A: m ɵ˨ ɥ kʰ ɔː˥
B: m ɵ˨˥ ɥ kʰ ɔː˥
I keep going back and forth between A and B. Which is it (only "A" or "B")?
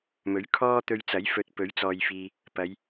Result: B